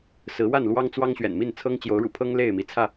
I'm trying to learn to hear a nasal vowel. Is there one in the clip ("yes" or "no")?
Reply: no